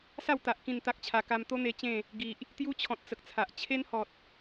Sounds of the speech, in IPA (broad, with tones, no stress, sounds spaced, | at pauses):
s a˥˧ w t̪ a˨ ʔ k ĩ˥˧ n t̪ a˦ k̚ t͡ɕʰ a˧ k a˧ m t̪ o˦ n̪ e˧ t͡ɕ ẽ˥˧ | ɡ i˨ ʔ | t̪ j u˦ t͡ɕʰ ɔ̃˨ t̚ t͡s ə˨ k̚ t͡sʰ a˨ ʔ t͡ɕʰ e˦ n h ɔ˨ t̚